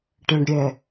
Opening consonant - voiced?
no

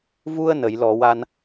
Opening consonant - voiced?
yes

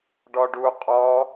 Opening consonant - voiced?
yes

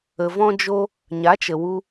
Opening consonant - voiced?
yes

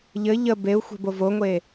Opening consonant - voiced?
yes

